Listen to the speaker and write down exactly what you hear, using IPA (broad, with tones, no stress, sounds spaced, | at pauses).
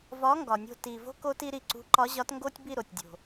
v ɒ˨˥ ŋ ɡ ɒ˨˩ nʲ o̤˦˨ t i˨˩ v o̤˦ k o˦ t i˦ ɾ i˦˨ ǀ ṳ˨˥ ǃ ɒ˨˥ ʑ ɒ˨˥ t ŋ ɡ o˦ tʲ b i˦˨ ɾ o˨˩ tʲ dʲ o̤˨˩